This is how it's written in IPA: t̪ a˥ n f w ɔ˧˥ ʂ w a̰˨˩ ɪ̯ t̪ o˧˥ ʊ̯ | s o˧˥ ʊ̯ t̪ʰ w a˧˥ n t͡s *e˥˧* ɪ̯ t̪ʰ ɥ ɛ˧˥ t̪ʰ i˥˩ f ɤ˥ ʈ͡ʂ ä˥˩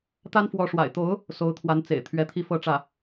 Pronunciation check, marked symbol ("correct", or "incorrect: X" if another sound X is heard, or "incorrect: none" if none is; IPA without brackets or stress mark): incorrect: ḛ˨˩